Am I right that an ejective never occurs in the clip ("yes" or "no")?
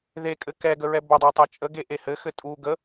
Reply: no